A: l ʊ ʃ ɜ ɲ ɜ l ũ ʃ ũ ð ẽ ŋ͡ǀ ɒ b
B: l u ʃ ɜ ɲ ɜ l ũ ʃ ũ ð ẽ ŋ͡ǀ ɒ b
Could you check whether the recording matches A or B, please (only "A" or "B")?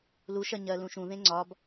B